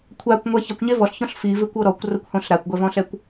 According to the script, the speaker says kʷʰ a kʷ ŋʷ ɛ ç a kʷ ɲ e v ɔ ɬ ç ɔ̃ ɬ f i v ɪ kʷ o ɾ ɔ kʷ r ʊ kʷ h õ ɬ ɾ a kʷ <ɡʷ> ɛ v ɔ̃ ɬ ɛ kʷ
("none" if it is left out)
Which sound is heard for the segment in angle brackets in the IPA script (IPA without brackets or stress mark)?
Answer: ɡʷ